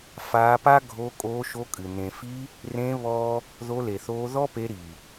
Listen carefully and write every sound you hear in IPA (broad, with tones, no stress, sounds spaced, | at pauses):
f aː˧ p a˦ ɡʱ o˧ kʼ oː˧ ʃ o˧ kʼ ɨ˨ n ẽ˨ f i˧ | r ẽ˧ β ɔ˦ | ð o˧ l e˨ θ oː˧ ð ɔ˦ p e˧ ɾ i˨